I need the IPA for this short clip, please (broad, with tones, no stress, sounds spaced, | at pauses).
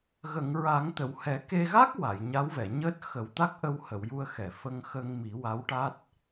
ɣ ə˨˩˨ ŋ ɹ a˨˩˦ ŋ t̪ ə˨˩˨ w h ɛ˨˩˦ k e˧ ɣ a˦˥ k̚ w a˨˩˨ j ɲ a˧˥ w v ɛ˨˩˨ ɲ əː˦˥ t̚ x ə˨˩˦ w t̪ a˦˥ k̚ ʔ ə˧ w h ə˨˩˨ w j u˧ ə̯ x ɛ˨˩˨ f ə˧ ŋ x ə˧ ŋ m i˨˩˦ w a˧˥ w ʈ a˦˥ t̚